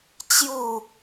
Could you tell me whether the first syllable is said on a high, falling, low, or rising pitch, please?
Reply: falling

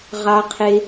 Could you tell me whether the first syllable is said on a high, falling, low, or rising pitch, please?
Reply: high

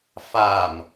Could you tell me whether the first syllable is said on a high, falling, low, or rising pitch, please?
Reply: low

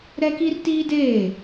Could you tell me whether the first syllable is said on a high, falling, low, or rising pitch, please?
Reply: high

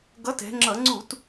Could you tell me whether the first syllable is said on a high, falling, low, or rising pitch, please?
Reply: rising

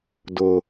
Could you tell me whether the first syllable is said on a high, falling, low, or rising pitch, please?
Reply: low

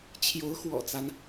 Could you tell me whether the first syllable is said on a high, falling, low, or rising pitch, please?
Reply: rising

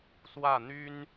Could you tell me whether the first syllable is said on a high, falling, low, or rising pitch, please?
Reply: falling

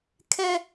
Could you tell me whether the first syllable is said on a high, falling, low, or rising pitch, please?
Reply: high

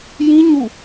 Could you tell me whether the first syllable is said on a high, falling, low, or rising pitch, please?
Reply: high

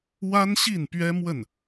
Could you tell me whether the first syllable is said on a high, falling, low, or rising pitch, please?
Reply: high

